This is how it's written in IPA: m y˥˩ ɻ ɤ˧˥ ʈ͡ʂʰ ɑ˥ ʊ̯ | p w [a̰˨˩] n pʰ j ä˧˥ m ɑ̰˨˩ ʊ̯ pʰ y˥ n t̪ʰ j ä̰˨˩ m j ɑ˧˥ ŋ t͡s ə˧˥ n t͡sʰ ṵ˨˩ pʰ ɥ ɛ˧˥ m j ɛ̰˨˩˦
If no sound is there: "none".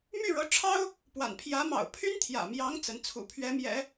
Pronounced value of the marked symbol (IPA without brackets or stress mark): a̰˨˩